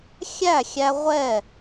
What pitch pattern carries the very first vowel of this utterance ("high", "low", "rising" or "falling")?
falling